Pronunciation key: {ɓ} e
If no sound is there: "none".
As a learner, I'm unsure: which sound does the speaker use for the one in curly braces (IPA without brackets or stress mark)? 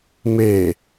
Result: m